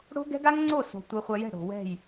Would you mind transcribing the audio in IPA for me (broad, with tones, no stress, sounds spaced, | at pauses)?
ɽ o̤˦ ɡ ɛ̤˦ ɡ a˦ ŋ ŋ͡ǀ o˦˨ s o̤˨ tʷ ɜ˧ χʷ a˧ j ɛ̤˦˨ ɽ o̤˨ w ɛ̤˦˨ j